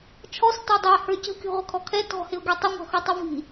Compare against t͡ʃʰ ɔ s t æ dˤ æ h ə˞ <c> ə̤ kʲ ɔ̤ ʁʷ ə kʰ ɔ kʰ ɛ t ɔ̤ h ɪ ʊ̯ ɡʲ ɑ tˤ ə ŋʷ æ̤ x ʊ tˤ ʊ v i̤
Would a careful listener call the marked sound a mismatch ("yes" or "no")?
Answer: no